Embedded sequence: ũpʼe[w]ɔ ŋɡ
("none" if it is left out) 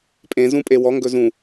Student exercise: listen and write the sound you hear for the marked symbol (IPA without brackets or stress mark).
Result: w